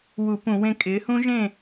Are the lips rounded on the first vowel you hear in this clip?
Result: yes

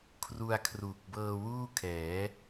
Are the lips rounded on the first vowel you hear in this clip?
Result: yes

